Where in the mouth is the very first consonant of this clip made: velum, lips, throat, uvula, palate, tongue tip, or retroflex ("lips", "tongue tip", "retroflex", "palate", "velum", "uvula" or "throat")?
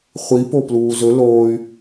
uvula